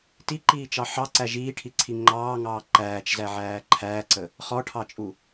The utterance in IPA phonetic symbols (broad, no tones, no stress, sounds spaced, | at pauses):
t i ǃ iː t͡ʃ ɑ ħ ɑ ǀ æ ʒ iː ʈʰ i ǀʰ i ŋ͡ǃ ɑː ŋ ɑː ǃ æː t͡ʃ z æ ʕ æː ǃʰ æː ǀ ə | χ ɔ ʈʰ ɑ t͡ʃʼ u